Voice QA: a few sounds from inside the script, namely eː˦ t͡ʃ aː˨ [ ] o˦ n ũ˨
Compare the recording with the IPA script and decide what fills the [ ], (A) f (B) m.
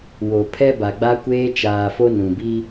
A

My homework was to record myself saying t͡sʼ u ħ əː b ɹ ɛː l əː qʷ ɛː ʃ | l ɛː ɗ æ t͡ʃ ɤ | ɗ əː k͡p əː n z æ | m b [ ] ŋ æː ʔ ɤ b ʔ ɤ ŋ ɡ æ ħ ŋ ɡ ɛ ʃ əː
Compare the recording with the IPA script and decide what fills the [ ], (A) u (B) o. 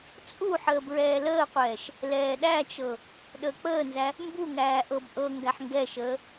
A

